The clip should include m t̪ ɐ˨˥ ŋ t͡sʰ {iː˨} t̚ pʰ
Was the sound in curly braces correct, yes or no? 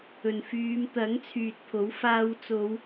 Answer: no